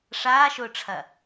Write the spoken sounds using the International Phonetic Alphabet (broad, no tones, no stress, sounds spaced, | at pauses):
ʂ aː ʃ ʊː ʈ͡ʂʰ ɐ